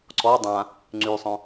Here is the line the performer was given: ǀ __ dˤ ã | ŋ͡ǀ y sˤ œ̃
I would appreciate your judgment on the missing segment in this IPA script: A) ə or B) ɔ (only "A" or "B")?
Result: B